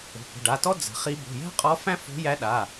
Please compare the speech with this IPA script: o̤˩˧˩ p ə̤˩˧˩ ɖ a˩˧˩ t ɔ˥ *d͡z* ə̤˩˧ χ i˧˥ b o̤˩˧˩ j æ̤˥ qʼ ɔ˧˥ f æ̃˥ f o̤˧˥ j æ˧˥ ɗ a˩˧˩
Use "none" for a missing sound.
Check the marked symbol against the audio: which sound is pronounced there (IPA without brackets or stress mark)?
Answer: d͡z